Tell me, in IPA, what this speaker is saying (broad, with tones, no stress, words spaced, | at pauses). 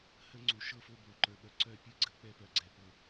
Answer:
hə˦ŋ͡ǀu˨ʃɤ˦ fo˦bo˨ǃə˞˨ɓœ˨ ǀœ˦˨pʲɨ˦ɡ͡ǀə˦ k͡pɛ˦pœ˨ɡ͡ǀɛ˨ pɤ˨